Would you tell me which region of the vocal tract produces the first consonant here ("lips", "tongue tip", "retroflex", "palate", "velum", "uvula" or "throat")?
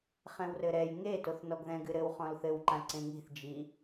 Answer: uvula